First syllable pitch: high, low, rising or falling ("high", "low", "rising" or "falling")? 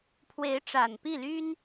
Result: rising